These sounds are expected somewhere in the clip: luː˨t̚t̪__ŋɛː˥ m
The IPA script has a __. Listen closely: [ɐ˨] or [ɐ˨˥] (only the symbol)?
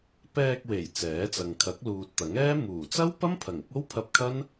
ɐ˨˥